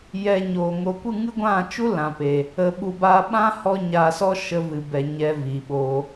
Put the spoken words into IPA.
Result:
jɛ˧ɲoː˨ŋo˧ kʷɨ˦˨ŋɨ˦ɡʷã˦˨t͡ʃu˦ lã˨pe˨ | ə˧ɓu˧ baː˧ɓã˦ hɔ˦ ɲaː˧sɔ˦ ʃə˧vɨ˨bɛ˨ ɲɛ˧viː˨ɓo˧

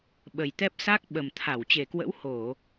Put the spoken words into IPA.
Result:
ɓə˨˩jt̪ɛ˦˥p̚ sa˦˥k̚ɓə˨˩mt̪ʰa˧˩w t͡ɕe˨˩kwə̰˧˥w ho˧˩˨

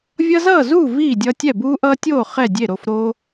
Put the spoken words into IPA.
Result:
vʲʌ˦zʌː˥˨zuː˥˨ viː˥˨dʲʌ˦tʲɛ˥˨ buː˦ʔʌː˦tʲoː˥˨ χɛ˥˨dʲe˥˨ ɾo˥˨fɾoː˦

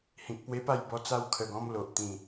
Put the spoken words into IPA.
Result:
hĩ˨k̚pwe˦pa˥˧j bɔ˦t͡sa˥˧wkʰə˧ɡɔ̃˦m lo˨ʔt̪ĩ˨˩

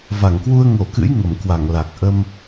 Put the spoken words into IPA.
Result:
va˧˩ŋkwu˧ə̯ ŋo˧˩kɨ̰˧˥j ŋə˧˩mkwa˧˩ŋla˨˩k̚ ʔə˧m

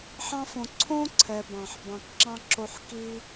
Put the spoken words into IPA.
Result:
ħɑ̃˦fõ˨ ǀʰõ˥ ǀʰɛ˨bɑ̃˩ħ bɑ̃˨kǁɑ̃˥ǁo˦ħ ki˥

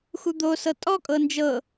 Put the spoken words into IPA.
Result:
xud̪osɤ tʼɔkʼɤ nd͡ʒɤ

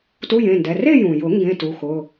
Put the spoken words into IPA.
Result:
tu˧˥˧jẽ˩˧˩ndɛ˩˧˩ re˥˧jũ˩jʊ˨˩˦ ŋɡẽ˧˥˧tu˩˧˩xʊ˩˧˩

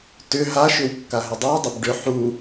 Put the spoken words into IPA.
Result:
tʏ ɦaʃʏw kːaɦʏdˤawdˤʏb ɖʏ ħu

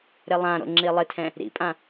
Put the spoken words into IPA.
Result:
ɾɪlˠãɾo̰ ŋ͡ǁilˠɪtʰɛ̃ | ɾḭpʼã

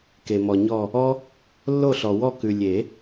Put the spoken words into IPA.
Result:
ke˨mɔ˨ɲɔ˦˨ | ɔ˦ | lːo˦˨ɬɔ˨wɔ˦˨ kʉ˨lʲe˨˩˦

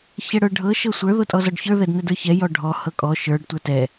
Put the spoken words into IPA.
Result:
çɛɽə˞ɖʱɤ ʃɤsʷə˞ ðotʼɔzɔɖçə˞ ðɛdnɛdə˞çɛ jɔɖʱɔ hɤkʼɔ ʃə˞ɖ tʷə˞tɛ

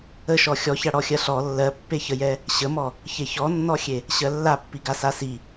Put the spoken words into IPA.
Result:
əʃɔ xʲɔçaɽɔxʲɜ ɬɔ lːɜpːeçəjɛ | ɕəmɔ | çeçɔnːɔxʲe | ɕɜlːapːiɡa sasi

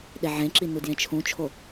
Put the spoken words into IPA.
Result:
ɗeʕẽǁi nudjẽt͡ʃʰũt͡ʃʰo

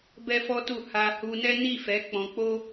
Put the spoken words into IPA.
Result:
bɛ˦fɔ˦tu˦˨ ha˧ hu˧nɛ˦ ni˦˨fɛ˨˦ k͡pɔ̃˧k͡po˦

